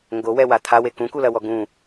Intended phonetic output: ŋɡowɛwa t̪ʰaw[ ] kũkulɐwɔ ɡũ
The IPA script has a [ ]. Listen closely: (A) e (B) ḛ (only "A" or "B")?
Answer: A